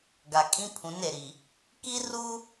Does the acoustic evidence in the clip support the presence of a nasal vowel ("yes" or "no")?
yes